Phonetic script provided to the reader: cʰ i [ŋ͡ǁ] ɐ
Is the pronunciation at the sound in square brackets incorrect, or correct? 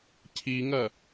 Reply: incorrect